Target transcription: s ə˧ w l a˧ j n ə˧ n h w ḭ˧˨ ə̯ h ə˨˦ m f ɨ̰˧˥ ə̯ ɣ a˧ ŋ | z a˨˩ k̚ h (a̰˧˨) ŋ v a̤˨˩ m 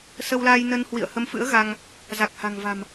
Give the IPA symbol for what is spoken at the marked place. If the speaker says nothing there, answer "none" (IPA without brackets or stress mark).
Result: a̤˨˩